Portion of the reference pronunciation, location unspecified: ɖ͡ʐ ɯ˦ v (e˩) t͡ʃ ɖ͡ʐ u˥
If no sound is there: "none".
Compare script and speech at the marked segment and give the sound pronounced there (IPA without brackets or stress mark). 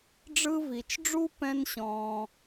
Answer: i˩